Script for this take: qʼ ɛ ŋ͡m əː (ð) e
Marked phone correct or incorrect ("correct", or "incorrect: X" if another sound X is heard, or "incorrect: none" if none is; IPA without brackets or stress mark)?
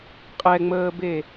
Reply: incorrect: b